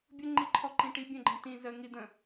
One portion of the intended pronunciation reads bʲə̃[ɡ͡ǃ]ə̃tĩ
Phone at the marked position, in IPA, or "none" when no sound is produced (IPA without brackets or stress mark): ɡ͡ǃ